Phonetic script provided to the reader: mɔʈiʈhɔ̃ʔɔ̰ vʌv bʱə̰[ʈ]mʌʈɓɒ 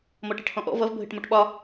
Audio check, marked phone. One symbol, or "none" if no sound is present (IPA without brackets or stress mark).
ʈ